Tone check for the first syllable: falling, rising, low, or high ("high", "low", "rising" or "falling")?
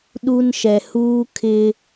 high